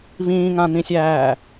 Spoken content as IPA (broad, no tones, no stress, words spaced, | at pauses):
βĩːŋãn̪ĩsʲæː